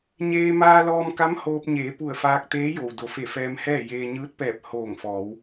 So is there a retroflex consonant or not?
no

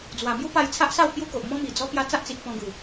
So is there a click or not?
no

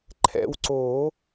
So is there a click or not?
yes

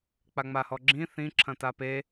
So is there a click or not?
yes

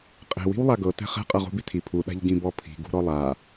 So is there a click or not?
no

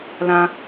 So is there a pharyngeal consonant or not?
no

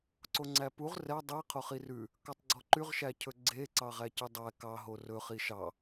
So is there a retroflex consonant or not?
no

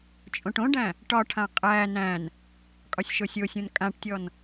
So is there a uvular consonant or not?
yes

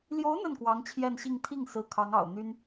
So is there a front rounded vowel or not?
yes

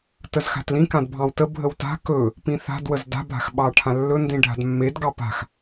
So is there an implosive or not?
yes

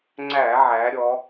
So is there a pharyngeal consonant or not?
yes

